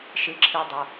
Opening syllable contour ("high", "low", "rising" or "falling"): low